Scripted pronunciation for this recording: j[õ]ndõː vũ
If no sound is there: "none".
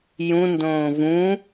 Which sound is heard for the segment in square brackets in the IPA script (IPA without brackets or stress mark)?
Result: ũ